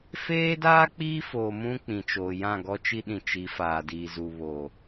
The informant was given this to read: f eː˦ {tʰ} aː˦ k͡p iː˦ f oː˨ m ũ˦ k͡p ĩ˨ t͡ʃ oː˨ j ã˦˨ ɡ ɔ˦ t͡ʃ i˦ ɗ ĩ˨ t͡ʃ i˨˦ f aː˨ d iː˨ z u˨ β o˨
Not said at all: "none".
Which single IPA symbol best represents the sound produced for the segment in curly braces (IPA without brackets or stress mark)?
d